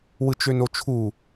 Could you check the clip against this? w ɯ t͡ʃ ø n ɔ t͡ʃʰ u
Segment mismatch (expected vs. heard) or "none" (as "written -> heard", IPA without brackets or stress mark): ɔ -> o